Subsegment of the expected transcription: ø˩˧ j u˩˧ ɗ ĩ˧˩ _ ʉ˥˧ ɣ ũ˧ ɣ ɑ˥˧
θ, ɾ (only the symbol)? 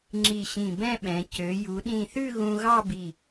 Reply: θ